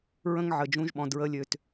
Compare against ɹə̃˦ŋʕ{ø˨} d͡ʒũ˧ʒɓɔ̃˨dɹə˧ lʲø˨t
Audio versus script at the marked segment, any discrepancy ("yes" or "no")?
yes